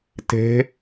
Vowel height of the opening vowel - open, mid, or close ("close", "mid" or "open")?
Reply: mid